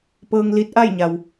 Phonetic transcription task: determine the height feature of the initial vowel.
mid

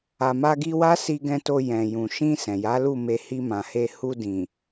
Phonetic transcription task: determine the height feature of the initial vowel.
low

